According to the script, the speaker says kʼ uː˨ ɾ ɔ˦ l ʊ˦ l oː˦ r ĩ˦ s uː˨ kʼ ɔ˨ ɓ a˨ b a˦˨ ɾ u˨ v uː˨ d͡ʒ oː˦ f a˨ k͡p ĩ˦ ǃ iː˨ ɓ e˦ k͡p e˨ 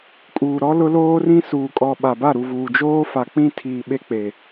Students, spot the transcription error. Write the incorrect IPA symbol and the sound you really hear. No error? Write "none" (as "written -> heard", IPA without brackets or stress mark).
ǃ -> tʰ